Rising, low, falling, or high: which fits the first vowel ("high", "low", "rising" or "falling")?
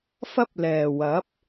high